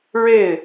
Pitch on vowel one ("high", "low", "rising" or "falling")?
falling